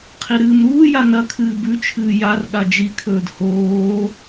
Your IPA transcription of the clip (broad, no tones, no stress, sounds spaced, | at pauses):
qʰ i ɾ ɨː m ɾ uː j a n ɐ kʰ ɨː b ʉ t͡ʃʰ ɨː j a r ɠ a d͡ʒ i kʰ ɵː d h oː